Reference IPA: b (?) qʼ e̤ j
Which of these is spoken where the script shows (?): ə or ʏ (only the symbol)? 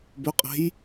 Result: ʏ